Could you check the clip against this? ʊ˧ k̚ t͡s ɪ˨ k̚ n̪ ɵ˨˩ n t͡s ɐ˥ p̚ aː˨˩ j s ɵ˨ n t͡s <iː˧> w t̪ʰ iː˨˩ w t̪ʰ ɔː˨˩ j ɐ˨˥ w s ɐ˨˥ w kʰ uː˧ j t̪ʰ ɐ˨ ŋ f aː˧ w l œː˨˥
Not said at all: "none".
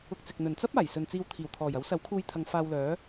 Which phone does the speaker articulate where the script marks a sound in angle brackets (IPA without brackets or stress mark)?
iː˧